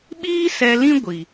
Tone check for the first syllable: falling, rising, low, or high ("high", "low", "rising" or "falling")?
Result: high